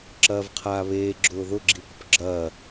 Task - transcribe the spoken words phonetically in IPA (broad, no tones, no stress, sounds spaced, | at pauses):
ǁ ɐː v qʰ aː β eː ɡ͡ǁ ʊː ð ʊ ɡ͡ǁ i p ʊ p ɡ͡ǁ ɐː